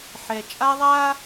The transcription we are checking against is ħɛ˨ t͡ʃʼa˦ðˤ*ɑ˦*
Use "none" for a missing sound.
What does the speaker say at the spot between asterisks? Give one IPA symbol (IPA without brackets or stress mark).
a˦